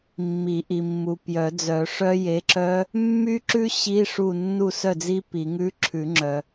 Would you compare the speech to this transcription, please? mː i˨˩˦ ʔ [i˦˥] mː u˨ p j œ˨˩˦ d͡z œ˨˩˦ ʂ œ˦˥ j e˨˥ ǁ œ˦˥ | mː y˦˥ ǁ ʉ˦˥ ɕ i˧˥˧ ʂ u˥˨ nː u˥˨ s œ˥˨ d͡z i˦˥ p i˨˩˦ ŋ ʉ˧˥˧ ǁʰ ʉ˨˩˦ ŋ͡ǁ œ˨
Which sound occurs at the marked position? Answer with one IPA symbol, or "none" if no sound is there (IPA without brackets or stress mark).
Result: i˨